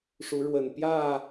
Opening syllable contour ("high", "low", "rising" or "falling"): rising